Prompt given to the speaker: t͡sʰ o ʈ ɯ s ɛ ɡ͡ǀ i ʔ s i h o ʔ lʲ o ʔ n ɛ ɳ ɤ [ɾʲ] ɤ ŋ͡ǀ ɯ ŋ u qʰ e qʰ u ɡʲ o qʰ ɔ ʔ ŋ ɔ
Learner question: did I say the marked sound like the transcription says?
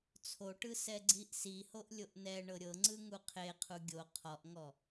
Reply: yes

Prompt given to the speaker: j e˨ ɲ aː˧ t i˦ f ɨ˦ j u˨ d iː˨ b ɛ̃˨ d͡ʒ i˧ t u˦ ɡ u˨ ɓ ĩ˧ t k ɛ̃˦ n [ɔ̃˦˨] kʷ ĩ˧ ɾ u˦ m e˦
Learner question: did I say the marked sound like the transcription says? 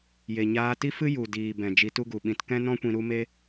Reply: no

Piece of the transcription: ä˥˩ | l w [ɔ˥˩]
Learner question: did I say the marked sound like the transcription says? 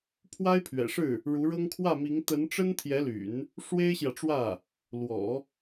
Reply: no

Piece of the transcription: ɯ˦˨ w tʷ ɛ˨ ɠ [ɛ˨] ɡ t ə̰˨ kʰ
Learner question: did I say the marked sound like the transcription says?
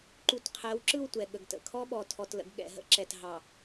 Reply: no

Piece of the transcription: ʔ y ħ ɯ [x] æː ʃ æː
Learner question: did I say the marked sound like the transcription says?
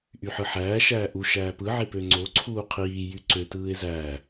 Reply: no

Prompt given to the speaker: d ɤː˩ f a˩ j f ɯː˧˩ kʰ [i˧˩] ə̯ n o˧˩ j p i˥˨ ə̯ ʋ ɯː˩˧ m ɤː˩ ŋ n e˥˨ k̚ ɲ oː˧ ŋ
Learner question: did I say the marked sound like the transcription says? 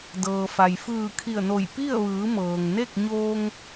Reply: yes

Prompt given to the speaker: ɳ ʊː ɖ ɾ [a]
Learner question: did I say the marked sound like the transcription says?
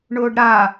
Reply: yes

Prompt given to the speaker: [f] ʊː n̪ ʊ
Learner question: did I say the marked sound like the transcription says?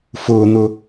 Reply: yes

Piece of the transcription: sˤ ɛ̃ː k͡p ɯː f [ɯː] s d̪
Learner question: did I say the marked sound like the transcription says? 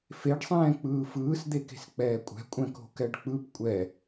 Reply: yes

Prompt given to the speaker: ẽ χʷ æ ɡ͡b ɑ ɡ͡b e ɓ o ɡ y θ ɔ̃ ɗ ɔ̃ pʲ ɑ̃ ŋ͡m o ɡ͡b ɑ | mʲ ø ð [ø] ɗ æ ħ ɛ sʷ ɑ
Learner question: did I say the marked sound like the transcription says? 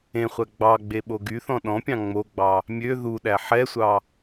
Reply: no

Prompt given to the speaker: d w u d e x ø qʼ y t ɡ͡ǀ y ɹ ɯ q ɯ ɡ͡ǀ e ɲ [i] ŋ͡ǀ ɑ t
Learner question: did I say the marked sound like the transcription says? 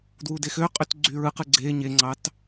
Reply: no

